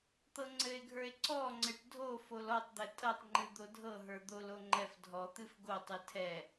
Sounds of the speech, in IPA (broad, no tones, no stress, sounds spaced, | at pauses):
t̪ ɤ ŋ͡ǀ ɘ e̯ ɡʱ ə˞ e̯ ǀ ɔ ŋ͡ǀ ɘ ʈ dʱ o f o l ɔ tˤ d̪ ɘ tʼ ɤ tˤ ŋ͡ǃ ɨ d̪ o dʱ ɤ ɦ ə˞ d̪ o l o ŋ͡ǃ ɛ f dʱ ɔ t̪ ɨ f ɡ o tˤ ɨ tʰ ɛ